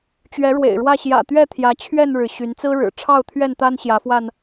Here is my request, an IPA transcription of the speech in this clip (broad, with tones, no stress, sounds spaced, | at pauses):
t͡ɕ ɥ ɛ˨˦ ɻ w ḛ˨˩ ɪ̯ ɻ w ä˥˨ ɕ j ä̰˨˩ t̪ ɥ ɛ˥˨ t̪ʰ j ä˨˦ t͡ɕʰ ɥ ɛ˥˨ n ɻ ɻ̩˩ ɕ y˨˦ n t͡s ɹ̩˦ ɻ ɻ̩˨˩ ʈ͡ʂʰ ɑ˥˨ ʊ̯ t̪ʰ ɥ ɛ˥˨ n t̪ a˦ n ɕ j ä˨˦ f w a˧ n